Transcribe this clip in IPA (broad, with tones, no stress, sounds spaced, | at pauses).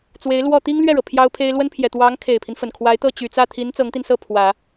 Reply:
t͡s w e˧˥ ɪ̯ l w ɔ˥˩ t̪ i˥ ŋ l ɥ ɛ˥˩ ɻ ɤ˩ pʰ j ɑ˥ ʊ̯ pʰ e˥ ɪ̯ l w ə˥ n pʰ j ɛ˨˩ t̪ w ɑ˧˥ ŋ kʰ e˨˩ ɪ̯ pʰ i˦ n f ə˨˩ n kʰ w a˧˥ ɪ̯ t̪ ɤ˥˩ t͡ɕ y˨˩ t͡s ä˥˩ t̪ʰ i˧˥ n t͡s ɤ˧˥ ŋ t̪ i˧ n s ɤ˥˩ pʰ w ä˨˩˦